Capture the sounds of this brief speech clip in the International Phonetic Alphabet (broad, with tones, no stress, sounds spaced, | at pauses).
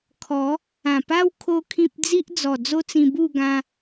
kʰ ɔ˨˦ | ã˨˩ p a˦ w kʰ o˦ kʰ ĩ˦ p̚ d͡z i˦ ʔ d͡z ɔ˨˩ d͡z o˦ t͡s ĩ˧ b u˥˧ ɡ ã˧